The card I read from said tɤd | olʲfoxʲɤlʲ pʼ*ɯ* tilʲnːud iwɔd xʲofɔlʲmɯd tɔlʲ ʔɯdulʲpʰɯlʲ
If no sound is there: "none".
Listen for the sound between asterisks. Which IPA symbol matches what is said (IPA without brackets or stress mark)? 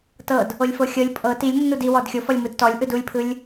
ɤ